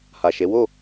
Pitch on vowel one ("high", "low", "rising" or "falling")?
low